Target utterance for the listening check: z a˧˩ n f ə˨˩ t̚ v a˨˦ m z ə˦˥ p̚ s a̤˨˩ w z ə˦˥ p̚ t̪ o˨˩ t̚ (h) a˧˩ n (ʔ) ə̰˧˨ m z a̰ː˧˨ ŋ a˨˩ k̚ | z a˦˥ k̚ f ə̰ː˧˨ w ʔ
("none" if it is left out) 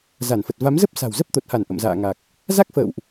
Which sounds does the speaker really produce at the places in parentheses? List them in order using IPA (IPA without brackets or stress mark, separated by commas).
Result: h, ʔ